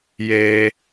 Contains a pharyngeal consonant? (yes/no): no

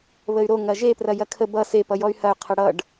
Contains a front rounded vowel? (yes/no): yes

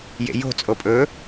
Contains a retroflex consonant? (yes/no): no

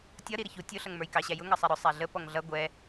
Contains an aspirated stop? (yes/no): no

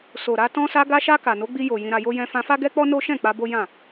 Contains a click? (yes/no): no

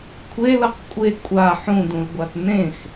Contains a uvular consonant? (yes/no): yes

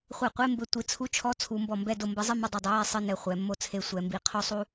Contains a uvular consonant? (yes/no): yes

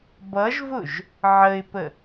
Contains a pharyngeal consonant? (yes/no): yes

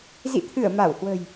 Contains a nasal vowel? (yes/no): no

